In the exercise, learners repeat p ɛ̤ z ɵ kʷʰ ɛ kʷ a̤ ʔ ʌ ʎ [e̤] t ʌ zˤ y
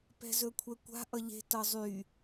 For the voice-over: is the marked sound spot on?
yes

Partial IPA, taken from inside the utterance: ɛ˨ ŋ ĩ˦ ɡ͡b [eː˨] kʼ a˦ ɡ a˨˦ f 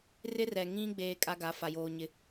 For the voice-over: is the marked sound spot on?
no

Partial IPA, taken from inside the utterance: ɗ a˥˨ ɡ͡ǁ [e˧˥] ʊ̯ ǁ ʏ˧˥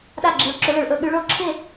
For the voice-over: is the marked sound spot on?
yes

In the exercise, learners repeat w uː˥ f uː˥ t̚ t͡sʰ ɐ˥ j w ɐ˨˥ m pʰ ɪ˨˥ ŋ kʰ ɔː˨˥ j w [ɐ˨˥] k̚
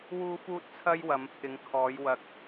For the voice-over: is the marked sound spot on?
no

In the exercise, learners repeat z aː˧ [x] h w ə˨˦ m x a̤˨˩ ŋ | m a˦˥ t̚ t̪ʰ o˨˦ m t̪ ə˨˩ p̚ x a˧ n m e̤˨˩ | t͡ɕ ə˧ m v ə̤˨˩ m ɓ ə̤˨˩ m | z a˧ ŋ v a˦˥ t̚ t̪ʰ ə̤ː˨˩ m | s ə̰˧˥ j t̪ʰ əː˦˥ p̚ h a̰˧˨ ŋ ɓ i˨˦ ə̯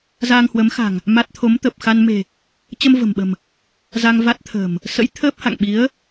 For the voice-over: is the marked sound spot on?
no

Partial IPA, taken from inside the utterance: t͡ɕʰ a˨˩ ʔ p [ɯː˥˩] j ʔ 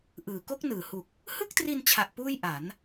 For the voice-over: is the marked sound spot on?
no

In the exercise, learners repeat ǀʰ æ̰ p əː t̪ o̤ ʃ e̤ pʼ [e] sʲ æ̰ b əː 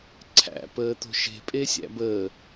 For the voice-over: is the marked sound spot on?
yes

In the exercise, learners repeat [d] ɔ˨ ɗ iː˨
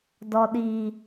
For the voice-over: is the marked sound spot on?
yes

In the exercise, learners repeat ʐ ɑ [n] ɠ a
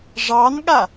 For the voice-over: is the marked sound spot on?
yes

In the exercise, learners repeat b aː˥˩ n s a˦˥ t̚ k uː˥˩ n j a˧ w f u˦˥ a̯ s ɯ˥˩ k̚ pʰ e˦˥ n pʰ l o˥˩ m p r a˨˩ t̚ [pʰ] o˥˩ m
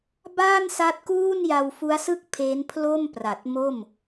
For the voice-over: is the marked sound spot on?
no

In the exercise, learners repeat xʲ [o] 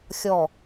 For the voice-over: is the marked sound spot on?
no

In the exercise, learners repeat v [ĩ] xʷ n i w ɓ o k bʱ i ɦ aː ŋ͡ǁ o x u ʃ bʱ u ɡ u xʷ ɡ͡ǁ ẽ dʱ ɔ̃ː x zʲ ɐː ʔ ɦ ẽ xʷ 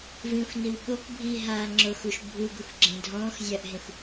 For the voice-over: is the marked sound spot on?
yes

